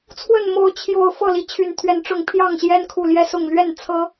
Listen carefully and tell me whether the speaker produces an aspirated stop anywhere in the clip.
yes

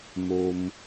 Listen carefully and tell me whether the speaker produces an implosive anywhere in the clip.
no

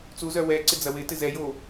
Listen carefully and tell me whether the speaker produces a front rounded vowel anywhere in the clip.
yes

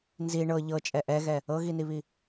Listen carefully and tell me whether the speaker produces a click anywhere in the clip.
no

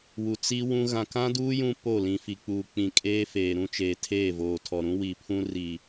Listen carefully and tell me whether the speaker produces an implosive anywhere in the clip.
no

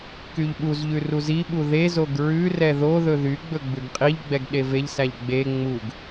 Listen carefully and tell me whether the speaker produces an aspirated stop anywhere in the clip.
no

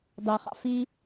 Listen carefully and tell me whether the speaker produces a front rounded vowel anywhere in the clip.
no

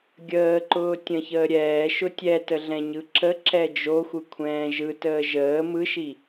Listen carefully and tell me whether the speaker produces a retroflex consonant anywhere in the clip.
no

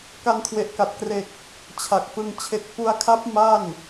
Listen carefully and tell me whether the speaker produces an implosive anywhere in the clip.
no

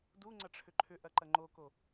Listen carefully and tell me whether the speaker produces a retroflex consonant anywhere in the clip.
yes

